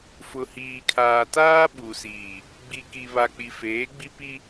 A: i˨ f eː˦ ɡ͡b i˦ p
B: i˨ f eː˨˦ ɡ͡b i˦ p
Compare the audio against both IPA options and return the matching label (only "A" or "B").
B